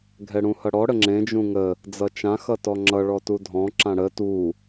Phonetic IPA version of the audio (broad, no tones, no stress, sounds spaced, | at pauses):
ɡʱ ɛ ɽ ũ h ʌ ɽ ɔ ɽ ə ŋ͡ǁ ẽ d͡ʒ ũ ŋ ə | d͡z ʌ t͡ʃ ã x ʌ t ɔ ŋ͡ǁ ʌ ɭ ɔ t u dʱ ɔ̃ ǁ ã ɽ ə t u